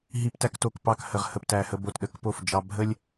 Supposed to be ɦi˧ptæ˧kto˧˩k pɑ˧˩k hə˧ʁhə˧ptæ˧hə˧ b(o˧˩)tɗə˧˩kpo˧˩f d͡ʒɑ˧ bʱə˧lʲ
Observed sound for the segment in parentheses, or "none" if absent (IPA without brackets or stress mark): o˧˩